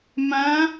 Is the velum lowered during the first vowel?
yes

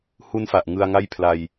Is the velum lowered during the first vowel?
no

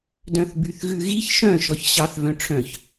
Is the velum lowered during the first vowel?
yes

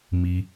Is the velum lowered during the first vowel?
no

